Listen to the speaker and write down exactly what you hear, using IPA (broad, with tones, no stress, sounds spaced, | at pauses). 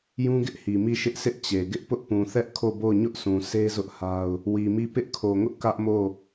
j ũ˦ ɡ ɪ˦ ʔ h i˨ m i˦˨ ʃ ɪ˦ ʔ sʰ ɪ˦ ʔ t͡ɕ e˨ ɡ ɪ˦ ʔ p ʊ˦ ʔ p ũ˨ θ ɛ˦ ʔ kʰ o˦˨ b o˦˨ ʊ̯ ɲ ʊ˦ ʔ sʰ ũ˨ s e˦ z ʊ˦ ʔ h a˦ ʊ̯ | w i˨ m i˦˨ p ɪ˦ ʔ kʰ o˨ ŋ ʊ˦ ʔ k ä˦ ʔ m o˦˨